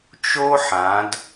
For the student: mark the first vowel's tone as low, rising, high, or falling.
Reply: high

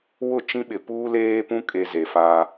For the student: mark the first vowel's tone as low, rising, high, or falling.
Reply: falling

